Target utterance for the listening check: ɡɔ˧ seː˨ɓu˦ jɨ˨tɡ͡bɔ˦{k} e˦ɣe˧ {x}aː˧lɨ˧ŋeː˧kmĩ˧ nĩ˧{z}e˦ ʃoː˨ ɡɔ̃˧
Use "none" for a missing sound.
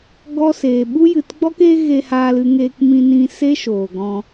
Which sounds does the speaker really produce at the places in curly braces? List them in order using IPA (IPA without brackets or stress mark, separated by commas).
k, h, s